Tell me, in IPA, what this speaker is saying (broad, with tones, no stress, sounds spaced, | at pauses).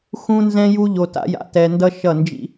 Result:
x ũ˧ n z ɛ̃˧ j u˧ ʎ o˧ t a̰˦ j a̰˧ t ɛ˧ n d ʌ˦ ʃ ʌ˦˨ n d͡ʒ ḭ˦